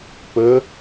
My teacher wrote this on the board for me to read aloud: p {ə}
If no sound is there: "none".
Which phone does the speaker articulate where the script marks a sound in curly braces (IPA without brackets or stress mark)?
ə